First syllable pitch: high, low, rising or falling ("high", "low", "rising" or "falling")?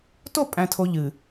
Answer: falling